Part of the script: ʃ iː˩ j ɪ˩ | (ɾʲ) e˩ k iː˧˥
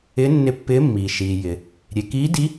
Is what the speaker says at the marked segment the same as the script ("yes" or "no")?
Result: yes